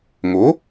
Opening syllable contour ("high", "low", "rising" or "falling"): rising